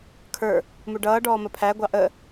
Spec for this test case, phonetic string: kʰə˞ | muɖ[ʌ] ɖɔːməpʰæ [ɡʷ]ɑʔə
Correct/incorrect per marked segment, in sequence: incorrect: ʌː, correct

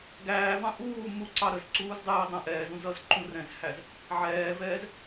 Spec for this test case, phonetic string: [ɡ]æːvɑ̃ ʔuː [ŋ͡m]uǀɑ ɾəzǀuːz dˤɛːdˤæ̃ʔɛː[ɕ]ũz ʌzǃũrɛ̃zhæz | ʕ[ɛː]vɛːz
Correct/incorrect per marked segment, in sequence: correct, incorrect: m, incorrect: z, correct

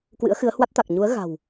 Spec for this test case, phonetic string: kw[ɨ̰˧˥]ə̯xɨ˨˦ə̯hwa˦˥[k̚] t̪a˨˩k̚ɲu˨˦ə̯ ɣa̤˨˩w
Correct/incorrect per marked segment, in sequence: correct, incorrect: t̚

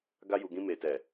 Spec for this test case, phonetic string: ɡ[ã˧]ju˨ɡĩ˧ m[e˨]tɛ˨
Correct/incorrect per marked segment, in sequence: incorrect: a˧, correct

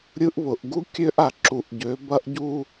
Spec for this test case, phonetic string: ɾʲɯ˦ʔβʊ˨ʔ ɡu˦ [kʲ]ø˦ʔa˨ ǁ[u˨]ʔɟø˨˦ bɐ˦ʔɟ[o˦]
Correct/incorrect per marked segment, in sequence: correct, correct, incorrect: u˦

